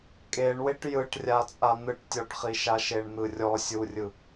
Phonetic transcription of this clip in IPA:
kʼeɳweʈ jɯʈrʲat͡sʼa n̪ɯʈtʲɔʈχiʃa ʃeɳn̪ɯrʲɔ sʲurʲɯ

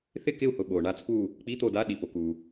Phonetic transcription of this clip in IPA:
θɪ˦˨kɪ˦˨u̯hʊ˩ ɓo˩ ɳa˦˨t͡spu˦˨ | k͡pi˧˥˧t̪o˦˨da˧˥˧ ɗi˩po˩ku˩

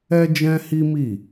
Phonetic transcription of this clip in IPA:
ɛ˦d͡ʒɛ̃˦hi˦mi˦˨

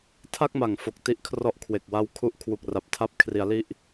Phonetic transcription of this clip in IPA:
tʰa˥˩k̚ma˨˩ŋfo˨˩k̚ ti˦˥ʔkʰrɔ˦˥ʔkʰwe˨˩k̚wa˦˥w kʰu˦˥ʔkʰwu˨˩k̚ra˨˩p̚ tʰa˦˥p̚kʰri˩˦a̯ li˥˩ʔ

